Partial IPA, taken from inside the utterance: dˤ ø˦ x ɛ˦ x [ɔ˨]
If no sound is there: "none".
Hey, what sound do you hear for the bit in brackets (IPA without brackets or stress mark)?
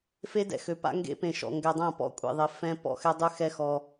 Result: ɔ˦